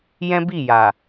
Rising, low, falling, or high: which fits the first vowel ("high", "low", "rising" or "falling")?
high